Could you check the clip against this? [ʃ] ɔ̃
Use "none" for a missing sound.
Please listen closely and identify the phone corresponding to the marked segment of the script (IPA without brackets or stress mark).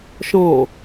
ʃ